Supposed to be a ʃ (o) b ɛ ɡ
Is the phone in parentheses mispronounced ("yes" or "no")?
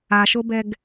no